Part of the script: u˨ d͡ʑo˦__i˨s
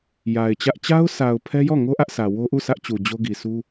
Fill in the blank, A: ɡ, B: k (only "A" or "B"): A